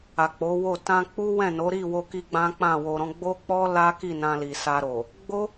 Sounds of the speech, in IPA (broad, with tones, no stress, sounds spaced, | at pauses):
a˨ k͡p o˨˦ w o˦˨ t ã˧ k͡p u˦ w ɛ̃˦˨ n o˨˦ ɾ i˦˨ w o˧ k i˧ ɡ͡b ã˦ k͡p ã˦˨ w o˧ ɾ ɔ̃˦ ɡ͡b o˦ k͡p ɔ˦ l a˦ k i˦˨ n ã˧ l i˨ s a˧ ɾ o˨ | ɡ͡b o˦